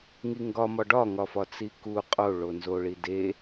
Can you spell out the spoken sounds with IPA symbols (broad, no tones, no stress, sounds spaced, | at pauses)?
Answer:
ŋ i ŋ ɡ ɒ m ɒ ɖ ɒ ŋ ɒ f ɒ t͡s i k u qʼ o ɭ o n z o ɭ i d e